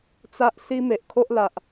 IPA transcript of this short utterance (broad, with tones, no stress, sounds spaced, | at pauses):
t͡s a˦ ʔ s i˦ m e˨ ʔ kʰ o˦ ʔ l a˨ ʔ